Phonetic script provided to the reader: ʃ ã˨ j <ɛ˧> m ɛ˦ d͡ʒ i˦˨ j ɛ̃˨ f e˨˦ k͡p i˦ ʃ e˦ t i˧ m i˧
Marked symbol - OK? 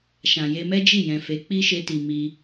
no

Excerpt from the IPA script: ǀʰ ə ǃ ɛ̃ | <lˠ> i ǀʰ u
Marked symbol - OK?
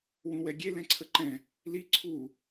no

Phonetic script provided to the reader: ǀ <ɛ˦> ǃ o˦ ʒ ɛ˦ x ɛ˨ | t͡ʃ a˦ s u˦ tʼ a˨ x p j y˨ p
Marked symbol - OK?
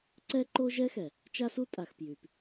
yes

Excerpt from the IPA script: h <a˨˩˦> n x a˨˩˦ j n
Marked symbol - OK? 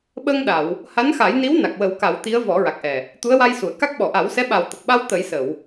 no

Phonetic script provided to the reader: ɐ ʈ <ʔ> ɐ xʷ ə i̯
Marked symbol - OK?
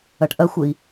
yes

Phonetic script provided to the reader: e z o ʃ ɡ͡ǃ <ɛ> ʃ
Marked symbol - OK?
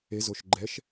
yes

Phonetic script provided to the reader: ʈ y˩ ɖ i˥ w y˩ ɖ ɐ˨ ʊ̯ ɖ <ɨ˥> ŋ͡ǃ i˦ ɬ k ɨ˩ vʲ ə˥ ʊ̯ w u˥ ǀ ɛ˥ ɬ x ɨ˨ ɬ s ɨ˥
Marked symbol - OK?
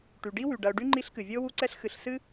no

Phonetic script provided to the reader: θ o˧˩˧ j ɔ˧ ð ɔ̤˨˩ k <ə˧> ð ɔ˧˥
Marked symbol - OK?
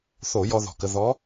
yes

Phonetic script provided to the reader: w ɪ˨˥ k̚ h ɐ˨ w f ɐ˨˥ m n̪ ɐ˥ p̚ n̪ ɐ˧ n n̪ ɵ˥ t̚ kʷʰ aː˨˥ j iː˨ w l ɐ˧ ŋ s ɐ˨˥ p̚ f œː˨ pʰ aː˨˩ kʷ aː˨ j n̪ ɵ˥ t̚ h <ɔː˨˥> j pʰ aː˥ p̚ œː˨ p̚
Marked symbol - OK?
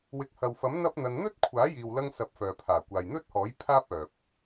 yes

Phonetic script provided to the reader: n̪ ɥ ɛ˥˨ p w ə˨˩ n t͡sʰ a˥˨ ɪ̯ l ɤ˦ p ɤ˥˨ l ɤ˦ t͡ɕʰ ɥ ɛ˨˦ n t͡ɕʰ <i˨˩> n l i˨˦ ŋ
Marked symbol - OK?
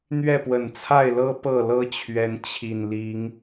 yes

